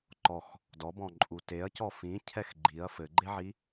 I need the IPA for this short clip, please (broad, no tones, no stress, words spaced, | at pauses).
ǃɔx | dɔbɔ̃ǃʼu teɐ̯cɔ fĩcʰɛx ɡ͡ǃiɐ̯ fɘɡ͡ǃeʕi